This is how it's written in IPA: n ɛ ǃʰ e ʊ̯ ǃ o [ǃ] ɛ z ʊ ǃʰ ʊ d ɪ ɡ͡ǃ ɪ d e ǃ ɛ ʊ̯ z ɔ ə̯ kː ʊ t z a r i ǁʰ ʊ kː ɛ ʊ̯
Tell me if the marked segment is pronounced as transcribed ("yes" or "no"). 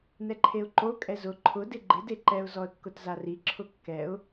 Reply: no